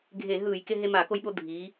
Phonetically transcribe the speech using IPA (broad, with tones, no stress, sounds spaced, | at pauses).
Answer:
ɡʱ e˧˩˧ ɦ ɯː˧˩˧ j k e˧ ɦ e˧ m a˧˩˧ k o˧ j ɓ o˧ dʱ iː˩˧